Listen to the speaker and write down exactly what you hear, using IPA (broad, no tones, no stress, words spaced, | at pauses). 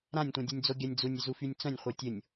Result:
ɾãnʲtʷɛ̃dʲunʲd͡zo ɡʲanʲd͡zunʲ ʏzufynʲt͡sœ̃nʲ χʷœtʲʊnʲ